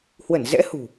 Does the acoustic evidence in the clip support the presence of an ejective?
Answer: no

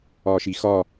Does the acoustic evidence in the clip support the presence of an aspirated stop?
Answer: no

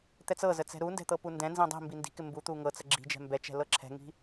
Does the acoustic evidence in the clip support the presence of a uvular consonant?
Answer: no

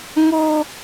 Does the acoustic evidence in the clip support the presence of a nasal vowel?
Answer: no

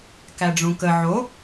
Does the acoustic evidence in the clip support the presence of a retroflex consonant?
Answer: yes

